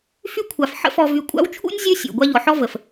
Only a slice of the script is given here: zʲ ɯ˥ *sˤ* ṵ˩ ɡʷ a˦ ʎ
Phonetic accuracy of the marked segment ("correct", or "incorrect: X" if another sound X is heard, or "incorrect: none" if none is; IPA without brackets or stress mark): incorrect: sʲ